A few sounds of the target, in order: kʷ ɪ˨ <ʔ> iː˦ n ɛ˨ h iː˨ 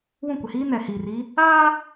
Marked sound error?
yes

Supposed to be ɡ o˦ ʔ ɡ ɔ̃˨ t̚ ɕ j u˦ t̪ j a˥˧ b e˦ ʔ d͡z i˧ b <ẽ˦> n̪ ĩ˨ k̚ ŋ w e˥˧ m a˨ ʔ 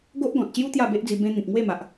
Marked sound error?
no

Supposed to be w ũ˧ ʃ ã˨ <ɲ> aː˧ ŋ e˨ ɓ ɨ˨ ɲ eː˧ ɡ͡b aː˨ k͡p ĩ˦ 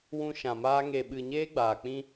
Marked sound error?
yes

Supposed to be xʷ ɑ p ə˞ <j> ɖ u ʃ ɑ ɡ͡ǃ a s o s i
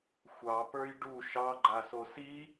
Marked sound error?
no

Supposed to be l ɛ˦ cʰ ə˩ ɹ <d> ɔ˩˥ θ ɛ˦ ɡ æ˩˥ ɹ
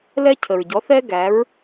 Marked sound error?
yes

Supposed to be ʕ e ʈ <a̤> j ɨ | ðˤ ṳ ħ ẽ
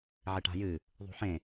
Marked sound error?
no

